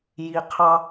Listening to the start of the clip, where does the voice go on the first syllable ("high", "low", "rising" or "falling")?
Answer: low